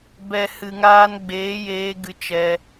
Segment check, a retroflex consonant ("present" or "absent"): absent